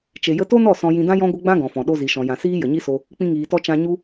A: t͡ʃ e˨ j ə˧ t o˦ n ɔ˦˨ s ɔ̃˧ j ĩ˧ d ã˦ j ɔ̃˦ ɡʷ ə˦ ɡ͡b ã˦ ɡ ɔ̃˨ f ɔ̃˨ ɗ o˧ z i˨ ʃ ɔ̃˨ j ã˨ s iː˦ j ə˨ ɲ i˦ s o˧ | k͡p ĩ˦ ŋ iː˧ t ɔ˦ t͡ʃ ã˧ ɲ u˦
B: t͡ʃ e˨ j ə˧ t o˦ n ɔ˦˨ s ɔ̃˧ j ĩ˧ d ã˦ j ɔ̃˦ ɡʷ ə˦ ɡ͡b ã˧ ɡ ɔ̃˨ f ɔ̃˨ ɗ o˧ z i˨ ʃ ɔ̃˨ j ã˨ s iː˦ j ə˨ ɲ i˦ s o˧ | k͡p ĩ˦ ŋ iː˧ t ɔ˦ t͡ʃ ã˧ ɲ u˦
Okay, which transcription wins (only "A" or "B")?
A